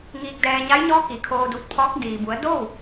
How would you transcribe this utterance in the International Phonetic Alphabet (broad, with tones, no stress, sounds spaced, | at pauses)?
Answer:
ŋ iː˧ k̚ d ɛː˧ ɲ a˧˥ j ɲ ɔː˧˥ k i˩ kʰ oː˧ d u˧˩ t̚ pʰ ɔː˧˥ k̚ d iː˩ b u˩˧ ə̯ d o˥˨ w